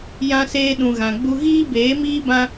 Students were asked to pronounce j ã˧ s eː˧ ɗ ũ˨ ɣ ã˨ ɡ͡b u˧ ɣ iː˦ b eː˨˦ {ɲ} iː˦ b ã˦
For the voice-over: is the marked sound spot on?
no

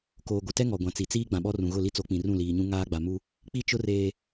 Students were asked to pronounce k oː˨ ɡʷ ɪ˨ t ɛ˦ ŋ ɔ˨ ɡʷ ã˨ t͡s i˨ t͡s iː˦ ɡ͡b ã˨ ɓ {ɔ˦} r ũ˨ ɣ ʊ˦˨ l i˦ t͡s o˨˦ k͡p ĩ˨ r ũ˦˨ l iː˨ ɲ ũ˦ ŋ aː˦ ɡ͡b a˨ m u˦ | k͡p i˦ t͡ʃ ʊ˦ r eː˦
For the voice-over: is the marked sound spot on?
yes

